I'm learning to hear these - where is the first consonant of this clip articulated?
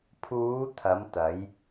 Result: lips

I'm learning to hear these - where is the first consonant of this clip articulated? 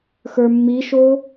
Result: velum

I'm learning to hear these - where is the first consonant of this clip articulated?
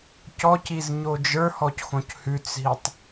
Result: palate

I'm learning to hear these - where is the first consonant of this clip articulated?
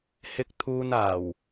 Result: throat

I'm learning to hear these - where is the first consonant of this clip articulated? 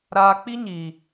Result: tongue tip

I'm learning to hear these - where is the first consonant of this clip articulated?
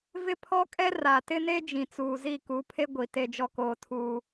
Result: lips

